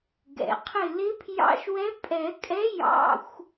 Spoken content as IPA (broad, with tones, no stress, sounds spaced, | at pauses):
ɡ ɛ̰˩ qʰ ɪ˧˩ l ɪ˧˥ pʰ j ɑ̰˧˥˧ ʃ w ɛ˧˥ pʼ ɛ˨˩˦ kʼ ɛ˧˥ j ɑ̰˧˥˧ xʷ